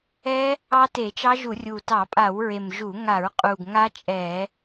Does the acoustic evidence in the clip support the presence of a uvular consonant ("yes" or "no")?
yes